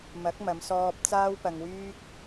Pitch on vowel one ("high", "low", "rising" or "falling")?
rising